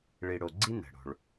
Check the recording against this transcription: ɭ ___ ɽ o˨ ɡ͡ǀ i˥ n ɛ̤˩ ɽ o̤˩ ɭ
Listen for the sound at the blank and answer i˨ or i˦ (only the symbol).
i˨